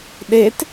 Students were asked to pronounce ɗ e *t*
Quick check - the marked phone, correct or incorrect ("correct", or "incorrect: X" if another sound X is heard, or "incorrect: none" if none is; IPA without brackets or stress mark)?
correct